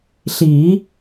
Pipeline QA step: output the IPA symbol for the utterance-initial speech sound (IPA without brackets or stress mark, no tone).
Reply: ɬ